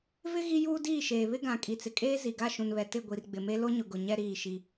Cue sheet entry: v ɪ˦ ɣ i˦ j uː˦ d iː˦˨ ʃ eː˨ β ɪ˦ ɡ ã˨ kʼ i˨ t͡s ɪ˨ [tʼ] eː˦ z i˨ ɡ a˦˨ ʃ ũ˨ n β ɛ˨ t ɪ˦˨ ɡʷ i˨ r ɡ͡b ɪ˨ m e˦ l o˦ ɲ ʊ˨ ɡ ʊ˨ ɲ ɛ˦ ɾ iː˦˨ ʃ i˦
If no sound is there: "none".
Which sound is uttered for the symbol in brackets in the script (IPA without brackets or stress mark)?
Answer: kʼ